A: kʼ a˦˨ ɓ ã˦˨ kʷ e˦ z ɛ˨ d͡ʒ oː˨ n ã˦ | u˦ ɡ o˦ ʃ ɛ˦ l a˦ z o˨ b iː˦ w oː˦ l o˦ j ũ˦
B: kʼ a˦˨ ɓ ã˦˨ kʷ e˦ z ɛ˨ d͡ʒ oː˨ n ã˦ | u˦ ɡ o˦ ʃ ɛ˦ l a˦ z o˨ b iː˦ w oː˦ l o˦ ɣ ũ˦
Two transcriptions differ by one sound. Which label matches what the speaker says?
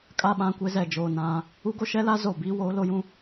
A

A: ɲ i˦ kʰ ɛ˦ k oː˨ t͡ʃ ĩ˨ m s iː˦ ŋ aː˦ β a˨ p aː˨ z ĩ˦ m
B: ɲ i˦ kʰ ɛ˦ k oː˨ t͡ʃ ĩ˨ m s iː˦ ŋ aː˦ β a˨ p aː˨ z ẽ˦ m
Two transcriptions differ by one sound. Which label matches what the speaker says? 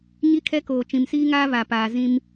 A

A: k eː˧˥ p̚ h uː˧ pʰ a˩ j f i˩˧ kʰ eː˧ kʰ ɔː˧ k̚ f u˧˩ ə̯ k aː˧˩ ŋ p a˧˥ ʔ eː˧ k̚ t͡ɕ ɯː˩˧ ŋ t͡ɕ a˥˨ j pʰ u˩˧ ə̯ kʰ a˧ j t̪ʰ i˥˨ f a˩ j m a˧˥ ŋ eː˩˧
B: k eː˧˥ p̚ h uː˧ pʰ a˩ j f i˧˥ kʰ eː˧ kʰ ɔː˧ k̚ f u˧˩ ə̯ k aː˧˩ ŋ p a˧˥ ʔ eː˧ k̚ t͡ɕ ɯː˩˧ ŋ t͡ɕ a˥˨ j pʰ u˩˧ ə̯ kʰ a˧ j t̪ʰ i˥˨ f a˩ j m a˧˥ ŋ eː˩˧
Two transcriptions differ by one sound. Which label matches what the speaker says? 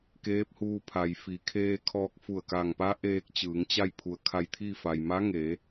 A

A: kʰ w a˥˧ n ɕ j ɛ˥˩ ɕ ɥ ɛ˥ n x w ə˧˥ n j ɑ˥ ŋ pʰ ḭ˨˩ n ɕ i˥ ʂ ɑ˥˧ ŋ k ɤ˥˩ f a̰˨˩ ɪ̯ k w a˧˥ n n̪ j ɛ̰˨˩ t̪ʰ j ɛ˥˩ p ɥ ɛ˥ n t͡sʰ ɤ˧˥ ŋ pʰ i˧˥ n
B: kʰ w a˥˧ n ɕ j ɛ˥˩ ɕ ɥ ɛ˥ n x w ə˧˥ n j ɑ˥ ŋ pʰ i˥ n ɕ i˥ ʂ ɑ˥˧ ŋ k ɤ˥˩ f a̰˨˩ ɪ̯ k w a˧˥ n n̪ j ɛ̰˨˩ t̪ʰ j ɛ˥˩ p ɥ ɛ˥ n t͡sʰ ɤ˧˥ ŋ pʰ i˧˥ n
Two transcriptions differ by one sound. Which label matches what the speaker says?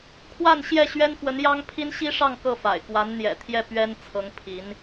B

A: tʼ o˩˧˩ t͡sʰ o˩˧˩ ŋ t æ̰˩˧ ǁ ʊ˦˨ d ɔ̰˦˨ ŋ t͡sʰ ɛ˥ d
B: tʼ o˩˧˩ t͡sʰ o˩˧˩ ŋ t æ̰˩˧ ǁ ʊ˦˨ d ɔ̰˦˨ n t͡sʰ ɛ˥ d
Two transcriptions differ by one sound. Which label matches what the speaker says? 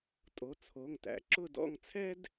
A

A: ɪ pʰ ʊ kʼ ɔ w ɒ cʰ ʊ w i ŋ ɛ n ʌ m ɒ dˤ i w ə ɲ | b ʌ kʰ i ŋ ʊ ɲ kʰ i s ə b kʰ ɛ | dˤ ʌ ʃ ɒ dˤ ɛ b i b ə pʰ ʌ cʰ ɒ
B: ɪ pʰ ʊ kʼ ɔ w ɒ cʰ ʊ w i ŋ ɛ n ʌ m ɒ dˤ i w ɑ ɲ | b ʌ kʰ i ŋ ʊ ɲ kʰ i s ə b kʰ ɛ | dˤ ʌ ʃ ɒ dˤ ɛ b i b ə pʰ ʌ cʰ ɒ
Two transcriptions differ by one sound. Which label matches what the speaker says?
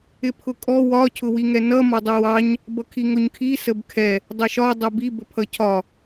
B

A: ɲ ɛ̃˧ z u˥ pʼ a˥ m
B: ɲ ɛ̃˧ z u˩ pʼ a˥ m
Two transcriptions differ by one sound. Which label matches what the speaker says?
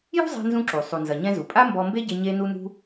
B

